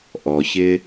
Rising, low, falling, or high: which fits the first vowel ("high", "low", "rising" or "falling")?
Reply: low